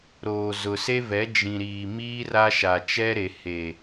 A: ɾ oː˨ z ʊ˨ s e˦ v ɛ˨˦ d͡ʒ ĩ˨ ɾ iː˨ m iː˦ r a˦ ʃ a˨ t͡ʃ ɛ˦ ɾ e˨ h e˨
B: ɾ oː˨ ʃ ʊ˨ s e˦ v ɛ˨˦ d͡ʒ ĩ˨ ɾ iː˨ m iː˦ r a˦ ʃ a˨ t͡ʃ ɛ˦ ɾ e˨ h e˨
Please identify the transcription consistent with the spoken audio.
A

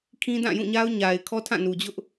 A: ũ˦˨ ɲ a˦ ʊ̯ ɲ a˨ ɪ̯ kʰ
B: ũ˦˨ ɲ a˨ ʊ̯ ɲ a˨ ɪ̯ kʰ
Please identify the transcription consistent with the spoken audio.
A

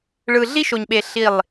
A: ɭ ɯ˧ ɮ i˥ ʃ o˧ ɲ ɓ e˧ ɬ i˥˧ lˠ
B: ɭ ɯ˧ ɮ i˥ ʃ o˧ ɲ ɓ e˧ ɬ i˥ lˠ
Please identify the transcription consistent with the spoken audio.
A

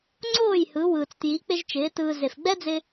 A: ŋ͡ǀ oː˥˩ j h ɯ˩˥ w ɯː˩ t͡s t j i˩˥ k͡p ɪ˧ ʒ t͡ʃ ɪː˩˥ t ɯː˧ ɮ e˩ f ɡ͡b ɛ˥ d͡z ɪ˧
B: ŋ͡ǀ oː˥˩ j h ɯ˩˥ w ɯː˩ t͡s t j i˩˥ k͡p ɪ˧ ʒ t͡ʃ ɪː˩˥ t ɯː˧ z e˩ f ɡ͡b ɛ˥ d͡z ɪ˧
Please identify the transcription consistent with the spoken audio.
B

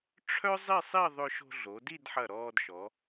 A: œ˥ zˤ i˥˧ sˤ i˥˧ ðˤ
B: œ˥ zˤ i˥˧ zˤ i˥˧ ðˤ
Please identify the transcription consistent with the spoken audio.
A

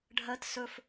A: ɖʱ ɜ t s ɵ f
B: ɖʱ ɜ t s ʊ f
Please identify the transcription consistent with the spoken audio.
A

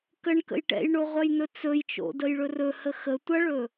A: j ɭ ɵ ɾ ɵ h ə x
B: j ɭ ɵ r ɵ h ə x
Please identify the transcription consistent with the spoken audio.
B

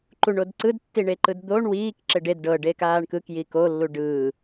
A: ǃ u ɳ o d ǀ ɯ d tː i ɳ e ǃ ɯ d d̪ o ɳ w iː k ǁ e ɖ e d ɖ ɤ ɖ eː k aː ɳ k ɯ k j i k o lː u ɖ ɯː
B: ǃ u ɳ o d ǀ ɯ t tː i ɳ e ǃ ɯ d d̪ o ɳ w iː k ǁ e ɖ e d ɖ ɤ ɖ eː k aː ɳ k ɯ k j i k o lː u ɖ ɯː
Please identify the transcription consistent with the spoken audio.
A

